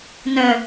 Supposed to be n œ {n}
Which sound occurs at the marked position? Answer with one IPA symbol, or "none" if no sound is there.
none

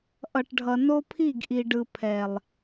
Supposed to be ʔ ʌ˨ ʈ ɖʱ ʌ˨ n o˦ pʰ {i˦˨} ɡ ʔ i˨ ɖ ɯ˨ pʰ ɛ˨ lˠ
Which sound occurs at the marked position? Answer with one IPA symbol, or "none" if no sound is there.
i˦˨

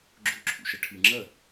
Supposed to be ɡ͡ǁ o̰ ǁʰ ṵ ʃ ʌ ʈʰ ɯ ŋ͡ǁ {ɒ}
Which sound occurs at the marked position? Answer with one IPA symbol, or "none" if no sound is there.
ʌ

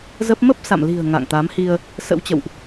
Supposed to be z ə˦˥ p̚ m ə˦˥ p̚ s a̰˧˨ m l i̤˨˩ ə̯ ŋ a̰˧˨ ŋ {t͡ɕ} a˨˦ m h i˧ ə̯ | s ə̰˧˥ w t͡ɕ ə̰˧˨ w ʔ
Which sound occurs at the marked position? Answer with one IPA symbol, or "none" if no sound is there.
t̪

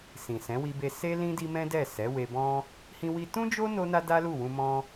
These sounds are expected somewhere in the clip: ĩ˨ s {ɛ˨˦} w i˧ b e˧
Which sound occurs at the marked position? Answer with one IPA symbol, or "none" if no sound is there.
ɛ̃˨˦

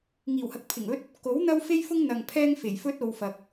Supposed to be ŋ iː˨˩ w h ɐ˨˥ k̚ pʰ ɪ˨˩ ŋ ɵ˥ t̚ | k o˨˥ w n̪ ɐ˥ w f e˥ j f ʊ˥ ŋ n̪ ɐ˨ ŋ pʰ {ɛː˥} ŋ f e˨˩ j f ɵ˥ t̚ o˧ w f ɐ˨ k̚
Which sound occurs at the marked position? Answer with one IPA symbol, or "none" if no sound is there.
ɛː˥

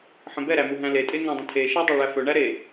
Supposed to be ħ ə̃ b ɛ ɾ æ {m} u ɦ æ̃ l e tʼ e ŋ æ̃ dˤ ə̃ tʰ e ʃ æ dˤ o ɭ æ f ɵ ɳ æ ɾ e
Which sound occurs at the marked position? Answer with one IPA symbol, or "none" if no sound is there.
m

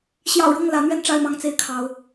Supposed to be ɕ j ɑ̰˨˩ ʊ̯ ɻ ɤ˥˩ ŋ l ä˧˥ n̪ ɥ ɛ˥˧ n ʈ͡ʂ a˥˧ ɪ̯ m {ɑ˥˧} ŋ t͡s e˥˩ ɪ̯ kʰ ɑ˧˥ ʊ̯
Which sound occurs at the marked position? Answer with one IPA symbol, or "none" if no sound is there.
ɑ˥˧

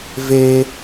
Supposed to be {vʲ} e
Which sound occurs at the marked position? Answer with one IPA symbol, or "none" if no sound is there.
v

